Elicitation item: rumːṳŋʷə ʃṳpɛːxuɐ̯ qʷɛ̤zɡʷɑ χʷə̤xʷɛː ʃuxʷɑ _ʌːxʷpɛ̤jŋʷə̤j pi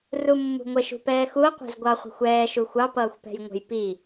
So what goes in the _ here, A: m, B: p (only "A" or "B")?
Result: B